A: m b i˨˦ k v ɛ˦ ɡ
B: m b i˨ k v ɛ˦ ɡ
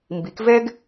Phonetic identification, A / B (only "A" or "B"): A